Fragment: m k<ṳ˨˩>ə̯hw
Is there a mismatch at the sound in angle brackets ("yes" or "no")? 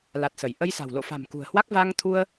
no